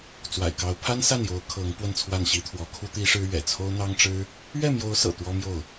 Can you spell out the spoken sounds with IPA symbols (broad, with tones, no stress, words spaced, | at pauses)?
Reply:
t͡swa̰˨˩ɪ̯kɑ˧˥ʊ̯ pʰa˥nsa˥˩njo˧˥ʊ̯ kʰɤ˧˥ŋ pwə˥˧nt͡sʰwa˥˩nɕi˥t̪ʰwɔ˧˥ kʰu˥t̪i˥ʂɻ̩˥ ɥɛ̰˨˩t͡sʰo˥ʊ̯n̪ɑ˥ŋʈ͡ʂɻ̩˥ | ɥɛ˥˩mjo˧˥ʊ̯sɤ̰˨˩ t̪wɔ˥mjo˥˩ʊ̯